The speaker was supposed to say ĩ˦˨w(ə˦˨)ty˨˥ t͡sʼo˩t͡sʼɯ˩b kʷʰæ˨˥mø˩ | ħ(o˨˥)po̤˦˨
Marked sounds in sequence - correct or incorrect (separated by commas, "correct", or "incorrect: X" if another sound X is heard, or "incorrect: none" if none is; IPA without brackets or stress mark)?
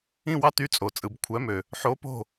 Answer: incorrect: ɑ˦˨, correct